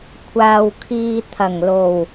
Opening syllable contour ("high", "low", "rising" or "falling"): low